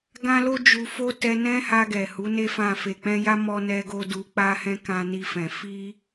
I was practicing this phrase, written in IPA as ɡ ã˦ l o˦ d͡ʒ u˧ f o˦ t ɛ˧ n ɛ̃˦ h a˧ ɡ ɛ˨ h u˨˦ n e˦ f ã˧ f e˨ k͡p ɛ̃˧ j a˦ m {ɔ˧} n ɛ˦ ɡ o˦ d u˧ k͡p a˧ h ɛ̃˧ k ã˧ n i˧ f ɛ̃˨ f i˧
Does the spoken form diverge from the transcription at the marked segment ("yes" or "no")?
yes